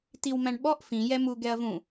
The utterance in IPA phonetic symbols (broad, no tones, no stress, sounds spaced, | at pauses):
t i w m æ̃ ɳ ɓ ɔ ʔ f ĩ j ɛ m u ɡ ɛ ɐ̯ v ũ